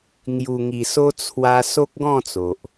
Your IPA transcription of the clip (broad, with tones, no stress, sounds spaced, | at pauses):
ŋ j u˨˩ ŋ i˨˩ s o˧ t͡sʰ w a˧ s o˦ k̚ ɡ ɔ̃˥˧ t͡s o˨ ʔ